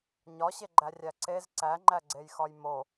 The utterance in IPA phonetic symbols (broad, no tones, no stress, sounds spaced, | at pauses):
ɲ ɒ ɕ e ɡ͡ǃ æ rʲ æ ǀ e z ǀ æ ŋ͡ǃ æ ɡ͡ǀ e j x ɒ j m o